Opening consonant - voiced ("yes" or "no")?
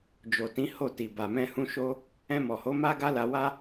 yes